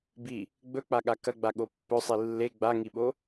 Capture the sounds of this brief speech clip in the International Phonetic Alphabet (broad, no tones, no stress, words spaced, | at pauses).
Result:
bi | ɡ͡bɵk͡paɠa kɐɡ͡baɠo pːɵsˤi lːe ɡ͡baŋiɓo